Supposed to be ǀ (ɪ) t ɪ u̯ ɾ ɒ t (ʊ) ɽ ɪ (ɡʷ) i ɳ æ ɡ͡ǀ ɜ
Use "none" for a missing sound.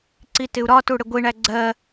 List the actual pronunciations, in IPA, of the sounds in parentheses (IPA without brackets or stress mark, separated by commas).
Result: i, u, ɡʷ